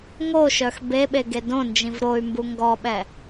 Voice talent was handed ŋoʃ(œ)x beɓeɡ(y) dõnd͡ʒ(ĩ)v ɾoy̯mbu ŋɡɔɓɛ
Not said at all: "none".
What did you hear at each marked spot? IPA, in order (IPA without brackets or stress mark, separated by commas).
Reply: œ, e, ĩ